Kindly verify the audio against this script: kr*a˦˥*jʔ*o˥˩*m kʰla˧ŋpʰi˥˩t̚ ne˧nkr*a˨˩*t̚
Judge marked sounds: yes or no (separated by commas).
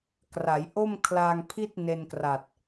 no, yes, yes